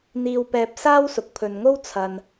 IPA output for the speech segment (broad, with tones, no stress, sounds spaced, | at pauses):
n̪ iː˧ w p ɛː˧ p̚ s aː˥ w s ʊ˨ k̚ pʰ ɵ˨ n ŋ o˥ w t͡sʰ ɐ˨ n